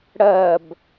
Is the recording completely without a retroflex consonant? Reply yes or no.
no